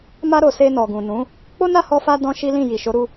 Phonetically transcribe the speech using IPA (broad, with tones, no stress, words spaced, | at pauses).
ma˧ɾo˨ se˧nɔ˨ɡũ˨ nũ˨˦ | k͡po˦na˦˨hɔ˧fa˧ dɔ̃˦ʃi˦lĩ˦˨ ji˨ʃo˨˦ ɾu˦